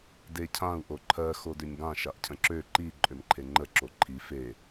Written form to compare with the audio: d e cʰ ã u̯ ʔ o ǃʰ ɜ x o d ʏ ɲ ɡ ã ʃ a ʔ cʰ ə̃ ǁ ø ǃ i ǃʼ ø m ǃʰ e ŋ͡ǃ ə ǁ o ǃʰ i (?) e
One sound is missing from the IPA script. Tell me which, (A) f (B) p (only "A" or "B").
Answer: A